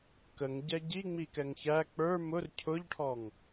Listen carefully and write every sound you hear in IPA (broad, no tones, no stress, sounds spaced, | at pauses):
k ə ŋ ɟ ɛ ɟ i ŋ͡m i k ɛ ŋ ç æ k͡p ə˞ m ʊ r cʰ ʊ ʎ ʈʰ ɔ ŋ